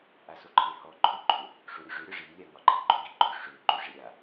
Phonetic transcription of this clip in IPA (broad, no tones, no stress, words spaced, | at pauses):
ʔasoǃʰehɔ ǃʰɵ ɡ͡ǃɵ | ʂoɾʲoʐø ɾʲɒʐi lʲaŋɒɡ͡ǃe ɡ͡ǃɵɡiɡ͡ǃɵ ʂø ǃøʐeɾʲa